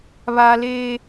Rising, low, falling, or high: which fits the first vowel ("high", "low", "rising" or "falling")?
high